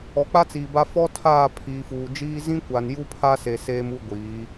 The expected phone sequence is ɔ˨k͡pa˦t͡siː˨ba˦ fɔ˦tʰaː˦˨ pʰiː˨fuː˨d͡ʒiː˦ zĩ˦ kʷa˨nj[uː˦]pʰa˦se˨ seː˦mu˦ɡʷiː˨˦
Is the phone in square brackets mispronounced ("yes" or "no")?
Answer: yes